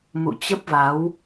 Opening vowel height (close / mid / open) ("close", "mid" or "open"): close